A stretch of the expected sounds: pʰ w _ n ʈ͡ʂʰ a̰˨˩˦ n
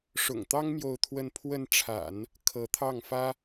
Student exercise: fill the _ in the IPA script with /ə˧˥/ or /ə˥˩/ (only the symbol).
ə˥˩